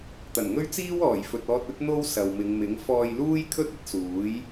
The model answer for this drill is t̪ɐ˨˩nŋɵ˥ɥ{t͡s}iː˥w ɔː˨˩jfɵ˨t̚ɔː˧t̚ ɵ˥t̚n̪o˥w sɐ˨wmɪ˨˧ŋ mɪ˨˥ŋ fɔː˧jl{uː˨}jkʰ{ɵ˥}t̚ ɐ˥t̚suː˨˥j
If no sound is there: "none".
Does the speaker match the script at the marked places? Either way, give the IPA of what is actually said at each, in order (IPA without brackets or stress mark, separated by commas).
t͡s, uː˥, ɵ˥